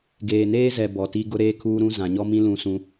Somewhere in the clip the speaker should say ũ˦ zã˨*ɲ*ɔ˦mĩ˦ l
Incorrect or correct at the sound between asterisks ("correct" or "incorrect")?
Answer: correct